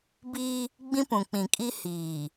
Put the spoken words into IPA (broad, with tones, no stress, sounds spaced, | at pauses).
b iː˦ | ɡ͡b ĩ˦ p ũ˨ k͡p ĩ˨ kʼ i˦ h iː˨